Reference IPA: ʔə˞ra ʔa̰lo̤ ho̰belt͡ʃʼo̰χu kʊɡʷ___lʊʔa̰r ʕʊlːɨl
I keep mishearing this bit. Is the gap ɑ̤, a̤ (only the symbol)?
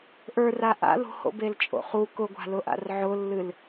a̤